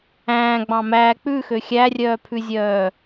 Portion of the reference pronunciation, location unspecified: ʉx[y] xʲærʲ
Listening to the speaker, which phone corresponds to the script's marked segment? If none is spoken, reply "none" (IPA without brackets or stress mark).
ø